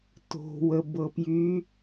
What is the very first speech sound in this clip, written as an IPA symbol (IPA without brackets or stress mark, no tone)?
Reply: t